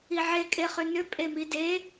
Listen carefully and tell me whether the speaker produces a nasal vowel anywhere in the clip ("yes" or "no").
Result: no